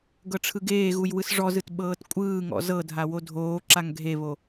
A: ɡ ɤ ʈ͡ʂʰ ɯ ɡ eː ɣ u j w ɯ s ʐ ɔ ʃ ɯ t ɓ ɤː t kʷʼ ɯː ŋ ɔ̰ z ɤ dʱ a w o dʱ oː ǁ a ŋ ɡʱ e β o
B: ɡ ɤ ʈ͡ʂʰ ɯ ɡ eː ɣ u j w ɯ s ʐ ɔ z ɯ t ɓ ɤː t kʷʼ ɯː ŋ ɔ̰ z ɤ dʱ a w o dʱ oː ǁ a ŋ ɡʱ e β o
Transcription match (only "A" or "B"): B